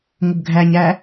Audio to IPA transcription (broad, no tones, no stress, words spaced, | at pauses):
ŋʷəbɡʱæɲæ